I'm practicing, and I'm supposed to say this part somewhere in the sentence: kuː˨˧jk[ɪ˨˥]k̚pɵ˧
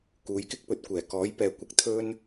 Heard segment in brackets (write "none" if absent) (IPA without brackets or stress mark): ɪ˥